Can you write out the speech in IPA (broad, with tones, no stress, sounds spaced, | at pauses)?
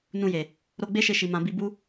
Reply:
n ũ˧ j e˨ | ɾ o˧ ɡ͡b e˦ ʃ e˧ ʃ i˨ m ã˨ b i˧ b u˦